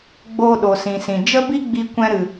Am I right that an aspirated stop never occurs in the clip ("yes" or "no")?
yes